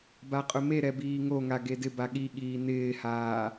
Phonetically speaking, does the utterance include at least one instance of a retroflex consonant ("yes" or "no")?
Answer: no